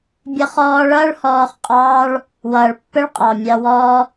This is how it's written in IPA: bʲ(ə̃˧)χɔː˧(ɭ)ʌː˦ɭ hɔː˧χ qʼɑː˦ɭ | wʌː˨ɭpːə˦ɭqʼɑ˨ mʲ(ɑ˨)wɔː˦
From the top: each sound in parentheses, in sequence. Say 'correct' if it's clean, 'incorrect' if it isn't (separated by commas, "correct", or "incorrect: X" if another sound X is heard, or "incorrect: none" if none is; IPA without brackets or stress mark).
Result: incorrect: ə˧, correct, incorrect: ɑ˧